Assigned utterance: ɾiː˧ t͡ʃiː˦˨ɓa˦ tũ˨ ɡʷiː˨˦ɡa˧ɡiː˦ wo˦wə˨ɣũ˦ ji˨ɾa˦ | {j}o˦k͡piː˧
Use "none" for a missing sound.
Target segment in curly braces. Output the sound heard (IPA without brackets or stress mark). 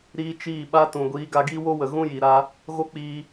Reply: ɣ